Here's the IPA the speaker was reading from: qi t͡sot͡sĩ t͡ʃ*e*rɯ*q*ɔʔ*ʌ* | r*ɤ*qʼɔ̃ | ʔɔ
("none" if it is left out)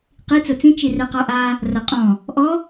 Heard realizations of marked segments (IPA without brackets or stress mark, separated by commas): i, q, a, ɤ